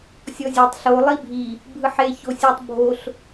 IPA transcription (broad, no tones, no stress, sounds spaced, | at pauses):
sʲ ɔ zʲ e tˤ ɬ o lˠ i bʱ i | bʱ ɯ ħ e ç o sʲ u tˤ bʱ o ɬ